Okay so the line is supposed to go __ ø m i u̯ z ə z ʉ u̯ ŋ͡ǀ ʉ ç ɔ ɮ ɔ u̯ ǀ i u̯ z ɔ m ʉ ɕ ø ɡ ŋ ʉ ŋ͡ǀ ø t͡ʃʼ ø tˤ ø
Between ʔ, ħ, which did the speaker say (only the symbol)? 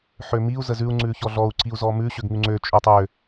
ħ